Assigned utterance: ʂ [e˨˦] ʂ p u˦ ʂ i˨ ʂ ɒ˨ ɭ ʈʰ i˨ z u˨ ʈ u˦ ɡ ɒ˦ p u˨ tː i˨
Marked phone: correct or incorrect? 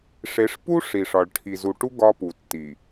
correct